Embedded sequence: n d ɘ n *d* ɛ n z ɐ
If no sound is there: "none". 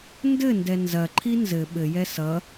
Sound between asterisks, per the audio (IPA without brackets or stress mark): d